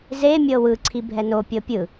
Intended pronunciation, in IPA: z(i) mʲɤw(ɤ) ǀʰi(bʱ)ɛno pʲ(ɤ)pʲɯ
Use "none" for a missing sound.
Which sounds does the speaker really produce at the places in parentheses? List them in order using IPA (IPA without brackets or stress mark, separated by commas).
e, ɯ, bʱ, ɤ